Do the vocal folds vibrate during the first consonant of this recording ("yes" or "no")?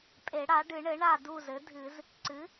no